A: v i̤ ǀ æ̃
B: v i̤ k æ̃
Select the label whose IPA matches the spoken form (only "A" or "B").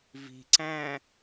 A